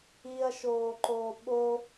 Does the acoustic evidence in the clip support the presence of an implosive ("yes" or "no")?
yes